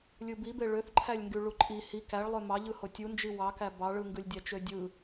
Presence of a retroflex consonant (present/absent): present